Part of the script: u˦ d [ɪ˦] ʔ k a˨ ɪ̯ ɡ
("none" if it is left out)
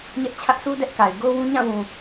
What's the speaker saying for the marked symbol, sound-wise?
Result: ɛ˦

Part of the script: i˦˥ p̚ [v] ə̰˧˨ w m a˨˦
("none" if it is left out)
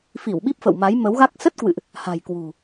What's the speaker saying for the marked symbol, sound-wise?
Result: f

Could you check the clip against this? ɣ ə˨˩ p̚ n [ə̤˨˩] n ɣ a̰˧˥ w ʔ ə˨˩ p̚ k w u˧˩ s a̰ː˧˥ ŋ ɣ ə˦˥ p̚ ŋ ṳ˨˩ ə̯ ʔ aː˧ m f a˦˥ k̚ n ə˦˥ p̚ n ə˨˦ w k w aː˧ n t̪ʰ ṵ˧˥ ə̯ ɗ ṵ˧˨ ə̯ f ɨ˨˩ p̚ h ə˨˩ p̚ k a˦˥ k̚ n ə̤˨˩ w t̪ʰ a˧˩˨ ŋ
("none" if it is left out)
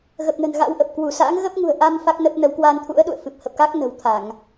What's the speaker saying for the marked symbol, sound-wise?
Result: ə̤˨˩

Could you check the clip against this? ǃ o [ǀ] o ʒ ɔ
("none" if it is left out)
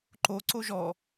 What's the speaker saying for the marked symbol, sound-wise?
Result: ǀ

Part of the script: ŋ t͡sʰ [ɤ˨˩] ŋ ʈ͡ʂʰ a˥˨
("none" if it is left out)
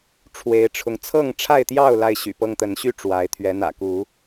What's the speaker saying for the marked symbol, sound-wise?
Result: ɤ˥˨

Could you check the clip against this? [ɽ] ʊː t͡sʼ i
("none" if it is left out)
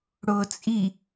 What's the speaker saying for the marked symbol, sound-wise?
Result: ɽ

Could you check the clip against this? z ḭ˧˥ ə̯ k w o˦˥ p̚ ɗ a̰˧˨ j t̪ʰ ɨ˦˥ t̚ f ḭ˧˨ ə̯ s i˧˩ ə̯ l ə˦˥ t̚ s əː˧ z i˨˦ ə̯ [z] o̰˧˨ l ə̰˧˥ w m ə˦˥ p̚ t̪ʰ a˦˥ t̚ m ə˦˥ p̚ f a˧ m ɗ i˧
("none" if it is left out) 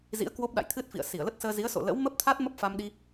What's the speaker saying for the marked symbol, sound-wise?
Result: s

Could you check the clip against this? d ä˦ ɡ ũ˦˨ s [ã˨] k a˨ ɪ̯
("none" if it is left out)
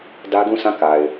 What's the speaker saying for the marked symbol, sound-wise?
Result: ã˦˨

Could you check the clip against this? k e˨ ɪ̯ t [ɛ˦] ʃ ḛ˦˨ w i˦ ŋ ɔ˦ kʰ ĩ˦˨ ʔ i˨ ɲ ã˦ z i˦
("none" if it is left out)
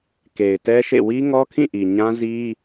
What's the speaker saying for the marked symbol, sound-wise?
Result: ɛ˦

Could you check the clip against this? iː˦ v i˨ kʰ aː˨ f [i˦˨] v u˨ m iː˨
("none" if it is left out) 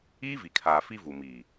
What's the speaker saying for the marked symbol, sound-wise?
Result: i˦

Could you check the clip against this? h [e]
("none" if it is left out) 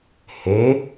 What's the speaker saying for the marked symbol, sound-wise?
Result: e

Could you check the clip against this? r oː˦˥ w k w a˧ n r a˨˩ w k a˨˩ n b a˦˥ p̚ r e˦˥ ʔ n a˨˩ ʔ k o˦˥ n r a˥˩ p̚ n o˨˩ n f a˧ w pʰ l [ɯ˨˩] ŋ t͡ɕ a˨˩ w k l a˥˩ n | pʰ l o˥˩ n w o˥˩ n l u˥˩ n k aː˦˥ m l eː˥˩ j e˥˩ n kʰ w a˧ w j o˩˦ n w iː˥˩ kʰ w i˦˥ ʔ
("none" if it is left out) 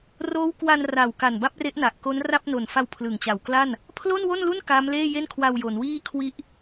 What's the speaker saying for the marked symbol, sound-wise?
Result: ɯ˨˩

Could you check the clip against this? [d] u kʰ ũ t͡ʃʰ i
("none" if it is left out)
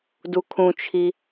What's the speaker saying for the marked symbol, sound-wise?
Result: d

